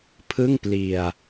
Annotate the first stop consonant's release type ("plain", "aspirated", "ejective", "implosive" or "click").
aspirated